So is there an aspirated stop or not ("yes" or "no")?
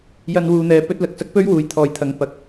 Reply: yes